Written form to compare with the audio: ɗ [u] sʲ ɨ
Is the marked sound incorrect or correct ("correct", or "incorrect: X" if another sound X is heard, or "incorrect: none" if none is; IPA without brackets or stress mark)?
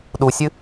correct